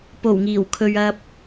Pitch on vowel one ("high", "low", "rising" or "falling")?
low